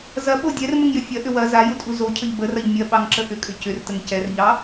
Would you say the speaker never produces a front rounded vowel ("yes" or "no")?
no